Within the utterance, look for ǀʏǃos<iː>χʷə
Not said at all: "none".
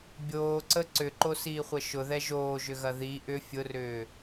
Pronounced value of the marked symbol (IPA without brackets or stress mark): iː